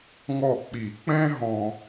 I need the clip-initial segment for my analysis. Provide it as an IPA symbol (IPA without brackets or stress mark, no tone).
ŋ